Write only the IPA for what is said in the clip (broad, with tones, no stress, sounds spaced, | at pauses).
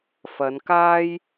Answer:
f ɐ˨˧ n k aː˥ j